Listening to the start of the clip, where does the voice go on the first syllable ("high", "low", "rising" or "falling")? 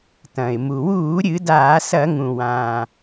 low